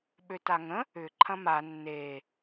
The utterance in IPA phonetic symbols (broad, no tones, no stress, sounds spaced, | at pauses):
ɓ ø t a ŋ ə̃ | ʏ ǃʰ ɐ̃ m a nː e